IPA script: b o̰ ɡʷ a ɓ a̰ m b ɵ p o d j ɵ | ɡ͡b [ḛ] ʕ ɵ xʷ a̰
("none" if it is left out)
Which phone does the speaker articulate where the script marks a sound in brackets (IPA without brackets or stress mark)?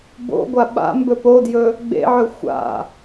ḛ